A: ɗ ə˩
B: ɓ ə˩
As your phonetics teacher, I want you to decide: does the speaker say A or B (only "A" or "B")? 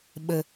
B